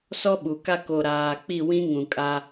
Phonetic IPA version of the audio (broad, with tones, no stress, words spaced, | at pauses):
sɔ˦ɓu˨ka˦ ko˨ ɾaː˨k͡pi˦˨wĩ˦ ŋũ˨kʼa˦